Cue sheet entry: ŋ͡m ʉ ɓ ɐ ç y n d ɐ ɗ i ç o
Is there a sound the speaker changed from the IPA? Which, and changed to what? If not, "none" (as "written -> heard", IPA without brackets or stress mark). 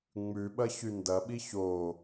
ɗ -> ɓ